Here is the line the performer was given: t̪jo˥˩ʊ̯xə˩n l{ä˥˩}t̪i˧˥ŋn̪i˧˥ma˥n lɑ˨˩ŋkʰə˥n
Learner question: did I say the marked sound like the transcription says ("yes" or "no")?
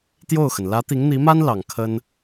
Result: no